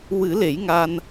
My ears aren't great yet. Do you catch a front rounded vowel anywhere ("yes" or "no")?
no